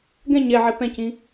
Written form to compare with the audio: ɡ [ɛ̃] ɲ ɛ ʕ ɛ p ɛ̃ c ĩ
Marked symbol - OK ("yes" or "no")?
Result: yes